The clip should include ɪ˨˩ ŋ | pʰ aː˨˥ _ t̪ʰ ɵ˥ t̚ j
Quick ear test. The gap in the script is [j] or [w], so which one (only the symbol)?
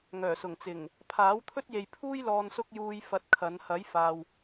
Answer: w